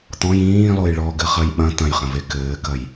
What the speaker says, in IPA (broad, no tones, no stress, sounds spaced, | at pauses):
t̪ ɔ̃ j ĩː lˠ o j ɭ ɔ ɡ ɘ χ ɐ j ɓ ɐ̃ t̪ ɐ̃ j χ ɐ̃ v e k ɘː k ɐ j